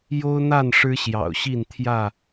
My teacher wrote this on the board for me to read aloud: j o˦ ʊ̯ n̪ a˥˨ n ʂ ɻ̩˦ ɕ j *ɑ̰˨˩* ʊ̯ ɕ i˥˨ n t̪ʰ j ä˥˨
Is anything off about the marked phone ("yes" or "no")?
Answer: no